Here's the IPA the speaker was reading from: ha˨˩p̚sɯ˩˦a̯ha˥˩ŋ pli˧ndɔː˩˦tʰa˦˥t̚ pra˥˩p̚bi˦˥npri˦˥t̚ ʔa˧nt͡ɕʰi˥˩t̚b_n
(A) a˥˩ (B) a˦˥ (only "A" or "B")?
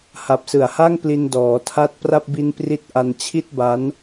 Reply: B